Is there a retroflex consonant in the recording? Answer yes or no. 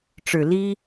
yes